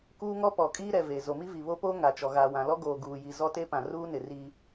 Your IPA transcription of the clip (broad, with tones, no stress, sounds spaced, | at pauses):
k uː˦ ŋ ɔ˦ p ɔ˨ kʼ iː˦ ɾ ɛ˨ v e˨ z o˨ m i˦ v i˨ β o˦ p oː˦ ŋ a˨ t͡ʃ ɔ˨ ɣ a˨ w ã˨ l ɔ˦ ɡ oː˨ ɡ uː˨ j i˨ z ɔ˦ t e˦ p ã˨ r uː˦ n ɪ˨ r iː˦